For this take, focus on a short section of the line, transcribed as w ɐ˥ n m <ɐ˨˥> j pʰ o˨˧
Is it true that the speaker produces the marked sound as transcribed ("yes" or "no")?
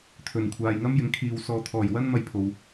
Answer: no